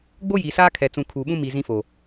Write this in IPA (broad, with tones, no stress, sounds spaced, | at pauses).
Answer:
ɡ͡b o˦ j iː˨ s aː˦ kʰ ɛ˨ t͡s ũ˨ kʰ uː˨ ɓ ũ˦ m i˨ z ĩ˦ f o˨